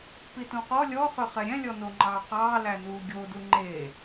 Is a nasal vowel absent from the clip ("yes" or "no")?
no